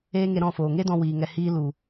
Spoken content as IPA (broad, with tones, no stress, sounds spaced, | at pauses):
eː˦ ŋ e˧ ɾ ɔ̃˦˨ f oː˨ ŋ e˦ d ɔ̃˧ w iː˨ ŋ ɛ˧ h iː˦ l u˨